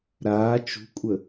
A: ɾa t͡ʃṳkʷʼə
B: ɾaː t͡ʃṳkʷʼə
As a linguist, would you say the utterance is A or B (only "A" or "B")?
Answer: B